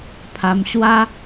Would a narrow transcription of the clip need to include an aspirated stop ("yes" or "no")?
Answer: yes